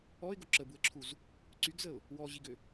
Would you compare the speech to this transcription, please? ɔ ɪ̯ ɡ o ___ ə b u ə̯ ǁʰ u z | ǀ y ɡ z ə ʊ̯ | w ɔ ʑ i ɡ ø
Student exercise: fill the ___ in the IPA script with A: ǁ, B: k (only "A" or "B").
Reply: A